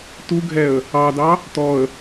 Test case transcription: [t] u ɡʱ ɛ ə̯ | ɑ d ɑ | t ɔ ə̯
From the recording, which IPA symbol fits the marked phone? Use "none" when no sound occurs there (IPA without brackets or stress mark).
t